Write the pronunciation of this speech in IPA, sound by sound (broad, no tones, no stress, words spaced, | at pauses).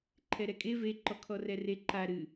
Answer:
ǃʰɛɾɛkʼe ve ǃɔkʰɔrɛre ǃa ɾɨ